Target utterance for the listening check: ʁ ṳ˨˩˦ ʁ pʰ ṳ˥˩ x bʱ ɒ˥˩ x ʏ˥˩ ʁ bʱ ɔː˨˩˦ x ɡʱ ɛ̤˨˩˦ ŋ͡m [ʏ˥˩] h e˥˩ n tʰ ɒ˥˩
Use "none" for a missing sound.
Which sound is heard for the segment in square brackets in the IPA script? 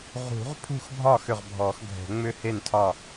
ʏ˥˩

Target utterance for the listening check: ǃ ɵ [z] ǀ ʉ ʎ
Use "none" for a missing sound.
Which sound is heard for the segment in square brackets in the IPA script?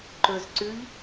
z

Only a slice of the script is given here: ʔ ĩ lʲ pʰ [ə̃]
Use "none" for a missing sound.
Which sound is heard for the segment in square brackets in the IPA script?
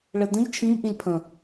ə̃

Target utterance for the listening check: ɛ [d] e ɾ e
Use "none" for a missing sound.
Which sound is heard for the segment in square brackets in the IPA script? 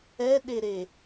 ɗ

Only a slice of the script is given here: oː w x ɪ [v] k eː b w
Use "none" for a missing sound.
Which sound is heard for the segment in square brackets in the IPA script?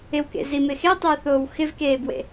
v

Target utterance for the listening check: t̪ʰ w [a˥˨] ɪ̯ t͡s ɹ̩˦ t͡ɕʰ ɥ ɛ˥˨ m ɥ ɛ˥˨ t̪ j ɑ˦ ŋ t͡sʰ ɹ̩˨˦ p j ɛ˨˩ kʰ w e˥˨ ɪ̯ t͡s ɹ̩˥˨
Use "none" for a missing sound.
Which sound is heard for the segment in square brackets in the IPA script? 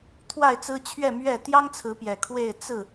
a˥˨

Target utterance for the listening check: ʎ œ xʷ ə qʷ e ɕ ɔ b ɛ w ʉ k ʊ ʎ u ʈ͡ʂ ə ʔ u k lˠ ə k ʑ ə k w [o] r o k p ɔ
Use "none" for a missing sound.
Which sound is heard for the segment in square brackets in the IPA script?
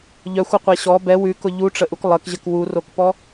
u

